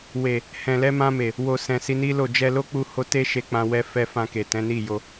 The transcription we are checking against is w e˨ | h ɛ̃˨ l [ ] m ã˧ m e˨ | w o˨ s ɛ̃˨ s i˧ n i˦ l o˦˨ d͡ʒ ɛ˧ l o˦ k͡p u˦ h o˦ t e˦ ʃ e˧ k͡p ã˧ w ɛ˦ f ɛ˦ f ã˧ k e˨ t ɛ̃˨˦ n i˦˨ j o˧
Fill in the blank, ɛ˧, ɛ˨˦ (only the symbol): ɛ˨˦